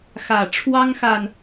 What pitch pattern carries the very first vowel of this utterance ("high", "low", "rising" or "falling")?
low